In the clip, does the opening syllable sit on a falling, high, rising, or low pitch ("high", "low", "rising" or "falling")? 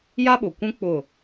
high